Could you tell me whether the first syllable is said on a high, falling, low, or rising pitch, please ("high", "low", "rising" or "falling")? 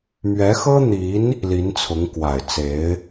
rising